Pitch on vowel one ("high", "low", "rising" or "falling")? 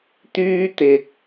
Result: high